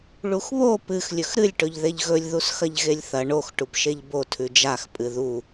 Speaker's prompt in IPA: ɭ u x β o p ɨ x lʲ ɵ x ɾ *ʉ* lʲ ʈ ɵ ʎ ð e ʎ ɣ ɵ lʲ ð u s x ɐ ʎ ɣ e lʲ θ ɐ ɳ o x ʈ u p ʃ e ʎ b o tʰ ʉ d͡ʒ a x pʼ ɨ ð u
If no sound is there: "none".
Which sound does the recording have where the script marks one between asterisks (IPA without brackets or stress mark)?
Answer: ɨ